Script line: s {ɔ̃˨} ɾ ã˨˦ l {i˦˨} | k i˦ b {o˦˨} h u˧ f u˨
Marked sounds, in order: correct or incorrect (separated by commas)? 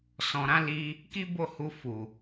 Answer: correct, incorrect, correct